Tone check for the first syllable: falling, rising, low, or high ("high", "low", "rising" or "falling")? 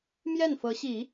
falling